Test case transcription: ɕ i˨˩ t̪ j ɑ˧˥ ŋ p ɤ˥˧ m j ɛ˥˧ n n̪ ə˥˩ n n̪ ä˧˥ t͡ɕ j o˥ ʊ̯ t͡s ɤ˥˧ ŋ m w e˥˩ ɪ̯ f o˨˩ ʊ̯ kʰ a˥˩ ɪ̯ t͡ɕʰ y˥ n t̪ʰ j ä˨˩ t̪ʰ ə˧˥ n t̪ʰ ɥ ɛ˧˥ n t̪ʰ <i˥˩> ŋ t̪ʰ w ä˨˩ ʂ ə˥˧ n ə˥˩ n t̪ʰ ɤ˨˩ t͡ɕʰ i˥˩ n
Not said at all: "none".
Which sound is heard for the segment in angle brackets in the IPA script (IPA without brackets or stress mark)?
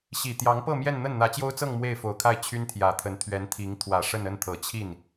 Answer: i˧˥